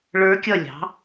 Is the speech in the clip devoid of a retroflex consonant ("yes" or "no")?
no